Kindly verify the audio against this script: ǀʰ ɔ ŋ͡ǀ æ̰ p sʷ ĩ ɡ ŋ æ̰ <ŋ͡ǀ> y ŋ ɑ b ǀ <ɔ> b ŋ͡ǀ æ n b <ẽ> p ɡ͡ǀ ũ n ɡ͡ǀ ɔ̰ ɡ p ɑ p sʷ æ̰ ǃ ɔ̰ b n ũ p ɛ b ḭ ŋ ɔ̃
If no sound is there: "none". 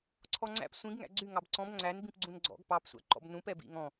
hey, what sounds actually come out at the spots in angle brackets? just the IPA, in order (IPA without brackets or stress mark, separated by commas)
ɡ͡ǀ, ɔ̃, ĩ